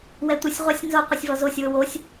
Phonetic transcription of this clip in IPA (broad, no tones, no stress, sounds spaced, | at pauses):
w ɛ tʷ ɪ sʲ ʁʷ a sʲ n z o qʷ ɪ sʲ v ɔ z o sʲ w ʊ w o sʲ